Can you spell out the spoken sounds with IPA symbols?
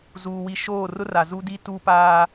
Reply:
zuː˨wi˨ʃoː˦˨rʊ˦ ra˨zu˦di˦ tu˦paː˦

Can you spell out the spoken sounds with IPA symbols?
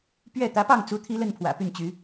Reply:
pɥɛ˥˩ t̪ä˧˥pɑ˥˩ŋ t͡su˥t̪ʰi˥lə˥˩n pʰwä̰˨˩ py˥˩nt͡ɕy˧˥

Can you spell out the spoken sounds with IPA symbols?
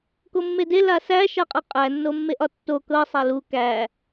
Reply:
komːede lasæ ʃaqʼɤqʼæ nːomːeʔɒtːo kɤ sˤalu kæ

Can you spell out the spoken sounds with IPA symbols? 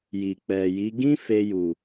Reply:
ji˨k͡pɛ˨ji˨˦ ɡĩ˦fe˧ ju˨

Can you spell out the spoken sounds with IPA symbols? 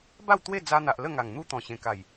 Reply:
ba˥˧wt̪we˥˧d͡za˧n̪a˨ʔ lə˥˧ŋa˨˩ŋ n̪u˥˧t̪ɔ̃˨˩ɕẽ˨˩ka˨˩j

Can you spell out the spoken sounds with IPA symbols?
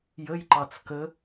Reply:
jəjǃɑt͡s kə

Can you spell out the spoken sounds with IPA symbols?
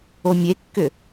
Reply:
omʲekːʏ

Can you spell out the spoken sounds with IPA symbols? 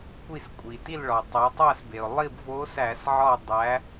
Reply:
kʷi˦˨skʷʼi˩ ti˦˨l ɭɒ˩ tˤo˩˧tˤæ˦˨sbe˩ʊ̯ lˠi˦˨bvo˧˥sæ˧˩˧sʕɒ˦˨ dˤæ˩˧

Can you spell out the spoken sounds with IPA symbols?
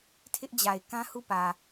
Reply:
tʰɪ˦ʔd͡ʑa˨ɪ̯ kã˦hu˦˨pä˨

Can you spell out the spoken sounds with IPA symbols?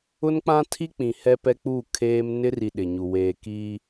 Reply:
ʊ˦n k͡pã˦tʰi˦ k͡pĩ˨hɛ˦ pɛ˦k͡pu˦˨ kʰeː˦m nɪ˦ri˨ ɗɪ˨ɲu˨ weː˨ kiː˦

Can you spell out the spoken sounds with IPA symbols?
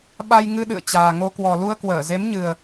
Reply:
ɓa˧jŋɨ˧ɗɨ̰˧˨ə̯ t͡ɕaː˨˩ŋo˧ kwɔ˨˩lu˧ə̯kwəː˧˩ ze˨˦mɲɨ˨˩ə̯

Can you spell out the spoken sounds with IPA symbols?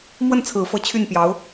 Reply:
mwə˥˩nt͡sʰɹ̩˨˩fɤ˧˥ t͡ɕʰy˥˩npjɑ˧˥ʊ̯

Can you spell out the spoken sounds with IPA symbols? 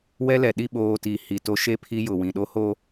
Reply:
wɛ˦lɛ˨ ɗi˦˨ɓoː˨ ti˨ hi˨to˦ ʃe˦pʰi˦jʊ˨ wĩ˨ɗo˦ho˦

